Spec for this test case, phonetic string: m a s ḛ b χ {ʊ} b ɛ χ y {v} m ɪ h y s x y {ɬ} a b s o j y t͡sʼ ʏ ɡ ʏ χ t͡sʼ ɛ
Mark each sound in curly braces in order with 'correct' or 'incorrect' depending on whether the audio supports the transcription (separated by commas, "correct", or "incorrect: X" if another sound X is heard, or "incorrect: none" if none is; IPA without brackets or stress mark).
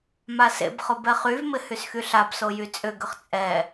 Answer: correct, correct, correct